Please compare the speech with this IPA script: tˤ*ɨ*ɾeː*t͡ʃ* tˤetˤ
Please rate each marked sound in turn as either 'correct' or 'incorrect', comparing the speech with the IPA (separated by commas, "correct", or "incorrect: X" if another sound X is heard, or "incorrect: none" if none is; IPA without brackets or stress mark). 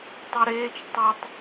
correct, correct